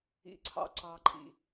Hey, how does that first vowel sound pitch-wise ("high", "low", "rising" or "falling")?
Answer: low